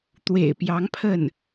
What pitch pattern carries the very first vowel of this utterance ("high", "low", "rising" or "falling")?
low